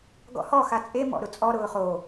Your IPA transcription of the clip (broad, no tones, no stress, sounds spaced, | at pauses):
ɡ ɔ̰ h ɔ x a t͡sʼ e m ɔ̰ ɾ ʊ t͡sʼ ɔ ɾ ʊː χ o